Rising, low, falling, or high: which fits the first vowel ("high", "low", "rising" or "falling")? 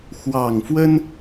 low